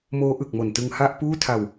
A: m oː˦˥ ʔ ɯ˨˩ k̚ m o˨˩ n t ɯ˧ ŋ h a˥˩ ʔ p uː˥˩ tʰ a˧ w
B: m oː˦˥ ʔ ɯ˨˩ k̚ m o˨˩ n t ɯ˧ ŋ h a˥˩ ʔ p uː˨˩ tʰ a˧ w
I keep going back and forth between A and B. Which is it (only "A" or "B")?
A